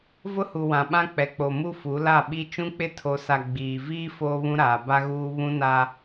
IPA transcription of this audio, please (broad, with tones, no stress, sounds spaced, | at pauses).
v ʊ˦ h u˨ w ã˨ ɓ ã˦ k͡p ɛ˨ k͡p o˨ m u˦ f u˨˦ l a˦˨ ɓ i˦ t͡ʃ ũ˦ k͡p ɪ˦ tʰ o˨ s a˨ ɡ͡b iː˨ v iː˦ f oː˦ β ũ˦ ɾ aː˨ b a˦ ɣ uː˦ β ũ˦ n a˦